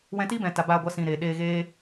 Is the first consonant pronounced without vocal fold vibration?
no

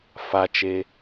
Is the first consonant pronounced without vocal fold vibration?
yes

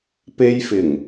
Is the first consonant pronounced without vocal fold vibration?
yes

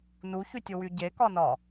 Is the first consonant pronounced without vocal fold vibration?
no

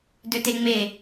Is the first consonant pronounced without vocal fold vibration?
no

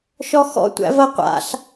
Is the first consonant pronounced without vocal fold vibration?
yes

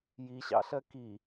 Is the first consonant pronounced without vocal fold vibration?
no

